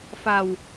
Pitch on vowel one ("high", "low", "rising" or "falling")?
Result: low